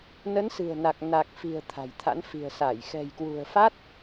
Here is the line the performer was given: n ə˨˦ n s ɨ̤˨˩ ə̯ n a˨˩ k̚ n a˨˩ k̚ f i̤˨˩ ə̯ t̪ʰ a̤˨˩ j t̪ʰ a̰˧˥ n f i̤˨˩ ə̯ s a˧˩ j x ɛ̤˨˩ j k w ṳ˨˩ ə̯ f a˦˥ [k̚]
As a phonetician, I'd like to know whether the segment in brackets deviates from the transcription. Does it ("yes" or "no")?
yes